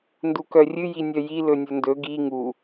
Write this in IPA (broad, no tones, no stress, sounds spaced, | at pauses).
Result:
n d u k œ rʲ ɨ j i nʲ œ j i l ɵ nʲ ɵ n d ɵ ɡ i ŋ u